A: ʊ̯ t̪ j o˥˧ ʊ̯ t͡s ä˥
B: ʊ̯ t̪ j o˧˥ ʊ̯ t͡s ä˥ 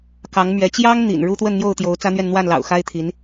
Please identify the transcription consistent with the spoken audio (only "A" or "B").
B